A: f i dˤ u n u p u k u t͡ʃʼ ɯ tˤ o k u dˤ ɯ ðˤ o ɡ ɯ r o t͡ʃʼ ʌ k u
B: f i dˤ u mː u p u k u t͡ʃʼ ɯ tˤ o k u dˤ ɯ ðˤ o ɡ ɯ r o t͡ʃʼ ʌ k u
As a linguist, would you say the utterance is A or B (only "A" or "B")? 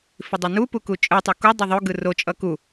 A